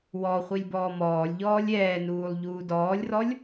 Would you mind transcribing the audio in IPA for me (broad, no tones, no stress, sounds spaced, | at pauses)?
w ɔ χʷ i lʲ b ɔː m ɔː lʲ ʎ ɔː lʲ ɛː n uː lˠ ʎ uː d ɔː lʲ r ɔ lʲ